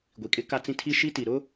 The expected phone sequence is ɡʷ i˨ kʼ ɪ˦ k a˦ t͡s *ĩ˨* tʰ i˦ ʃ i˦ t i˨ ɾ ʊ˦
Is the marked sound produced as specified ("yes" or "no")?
no